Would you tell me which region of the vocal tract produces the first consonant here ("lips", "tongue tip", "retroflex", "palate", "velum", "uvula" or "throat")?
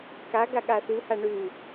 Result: velum